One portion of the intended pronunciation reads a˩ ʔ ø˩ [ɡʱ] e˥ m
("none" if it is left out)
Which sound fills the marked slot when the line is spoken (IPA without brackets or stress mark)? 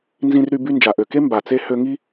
k